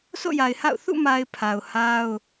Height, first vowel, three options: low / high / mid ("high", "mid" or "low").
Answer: mid